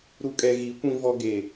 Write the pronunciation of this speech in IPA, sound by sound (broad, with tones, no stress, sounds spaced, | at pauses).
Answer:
ɾ u˨ kʼ ɛ˨ ɣ i˨˦ kʷ ĩ˦ v ɔ˦ ɡ e˦˨